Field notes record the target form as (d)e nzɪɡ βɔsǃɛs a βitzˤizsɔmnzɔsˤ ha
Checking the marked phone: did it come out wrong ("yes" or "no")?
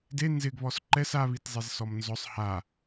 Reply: no